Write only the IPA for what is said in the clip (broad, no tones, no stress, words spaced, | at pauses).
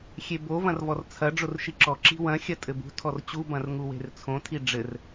xʲebo vɐ̃rvɔrt͡sʰɐ ɖ͡ʐorʃiǁɔ ǁi̤wɐ̃ xʲɐtʼɘbṳ tʰɔrt͡ɕu bɐ̃rŋuwe̤rt͡sʰõ tʰiɖ͡ʐɘr